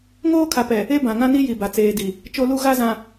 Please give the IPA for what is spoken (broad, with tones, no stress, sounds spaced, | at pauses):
ŋ oː˦ kʰ a˨ p ɛ˨ | e˦ b ã˨ ŋ ã˦ n i˦ j i˨ b a˨ t͡s eː˨ d i˨ | t͡ʃ o˦ l u˦ ɣ a˦ z ã˨